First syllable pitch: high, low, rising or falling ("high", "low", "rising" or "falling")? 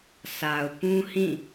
low